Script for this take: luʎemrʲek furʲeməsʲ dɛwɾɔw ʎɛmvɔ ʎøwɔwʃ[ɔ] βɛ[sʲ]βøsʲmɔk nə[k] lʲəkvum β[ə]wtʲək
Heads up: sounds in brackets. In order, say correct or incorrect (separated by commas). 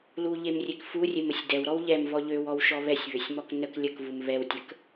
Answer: correct, correct, correct, incorrect